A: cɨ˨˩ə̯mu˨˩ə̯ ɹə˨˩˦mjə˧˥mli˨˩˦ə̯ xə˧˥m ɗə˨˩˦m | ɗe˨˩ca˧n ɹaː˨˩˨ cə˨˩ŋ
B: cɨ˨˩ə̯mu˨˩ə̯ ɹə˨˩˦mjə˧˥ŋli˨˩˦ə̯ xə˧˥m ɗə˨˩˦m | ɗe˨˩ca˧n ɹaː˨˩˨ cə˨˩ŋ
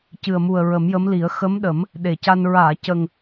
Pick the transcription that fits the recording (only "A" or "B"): A